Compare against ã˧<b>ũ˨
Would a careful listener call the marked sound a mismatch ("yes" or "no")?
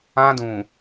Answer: yes